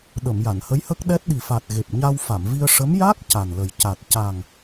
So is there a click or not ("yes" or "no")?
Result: no